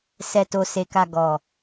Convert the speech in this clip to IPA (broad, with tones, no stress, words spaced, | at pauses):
sɛ˨to˨ se˨ka˨ ɡɔ˨